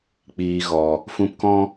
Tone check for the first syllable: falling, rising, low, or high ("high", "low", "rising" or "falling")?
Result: low